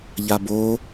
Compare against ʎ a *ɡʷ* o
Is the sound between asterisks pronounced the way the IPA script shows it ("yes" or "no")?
no